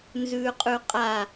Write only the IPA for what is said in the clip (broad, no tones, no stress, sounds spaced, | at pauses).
n z ʉː qʼ ʉ qʼ a